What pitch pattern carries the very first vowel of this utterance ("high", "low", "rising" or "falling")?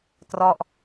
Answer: falling